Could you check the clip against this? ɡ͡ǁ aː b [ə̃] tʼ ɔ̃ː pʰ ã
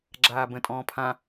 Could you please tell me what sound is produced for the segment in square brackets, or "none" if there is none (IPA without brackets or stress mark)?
ə̃